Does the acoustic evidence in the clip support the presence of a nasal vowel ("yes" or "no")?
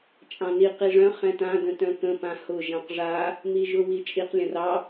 yes